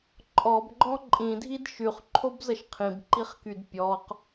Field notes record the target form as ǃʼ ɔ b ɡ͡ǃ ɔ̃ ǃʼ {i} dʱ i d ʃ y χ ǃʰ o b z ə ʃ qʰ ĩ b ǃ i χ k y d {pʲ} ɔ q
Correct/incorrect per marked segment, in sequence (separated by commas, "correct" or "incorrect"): incorrect, correct